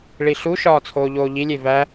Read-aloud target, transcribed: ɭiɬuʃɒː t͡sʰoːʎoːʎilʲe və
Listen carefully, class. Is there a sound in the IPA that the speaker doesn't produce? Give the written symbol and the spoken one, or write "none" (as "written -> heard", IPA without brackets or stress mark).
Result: ə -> æ